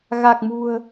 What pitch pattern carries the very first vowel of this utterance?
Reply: low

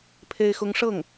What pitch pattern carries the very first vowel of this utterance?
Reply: high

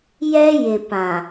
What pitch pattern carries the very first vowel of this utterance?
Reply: high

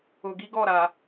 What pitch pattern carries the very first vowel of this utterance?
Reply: low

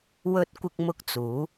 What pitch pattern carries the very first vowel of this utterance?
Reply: high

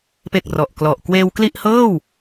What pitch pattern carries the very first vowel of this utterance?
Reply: low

